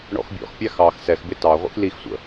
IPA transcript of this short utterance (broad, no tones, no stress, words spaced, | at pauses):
ɳɔ̰xbʲɔ̰xpʲæ xɑx sɛxbɪ tɑ ʁʷḭxlixsʷə̰